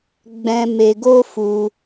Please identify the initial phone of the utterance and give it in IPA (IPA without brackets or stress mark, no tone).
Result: ɡ͡b